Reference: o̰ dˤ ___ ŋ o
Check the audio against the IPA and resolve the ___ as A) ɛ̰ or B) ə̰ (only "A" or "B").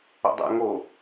A